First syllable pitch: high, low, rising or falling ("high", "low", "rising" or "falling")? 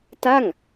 falling